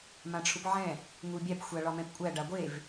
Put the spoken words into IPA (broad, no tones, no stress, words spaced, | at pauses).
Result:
mãʈ͡ʂʰupʕɛ̃ | ŋubʲæp xʷaɭɒmɛ̃pkʷʼæ ɖaɡʷev